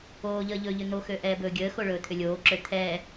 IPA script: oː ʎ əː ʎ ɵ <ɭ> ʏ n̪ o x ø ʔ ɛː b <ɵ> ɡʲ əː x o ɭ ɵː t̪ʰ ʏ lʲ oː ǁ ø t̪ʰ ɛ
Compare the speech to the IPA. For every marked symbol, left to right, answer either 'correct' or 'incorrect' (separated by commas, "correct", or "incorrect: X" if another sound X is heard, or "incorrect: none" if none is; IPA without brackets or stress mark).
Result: incorrect: ʎ, incorrect: ɵː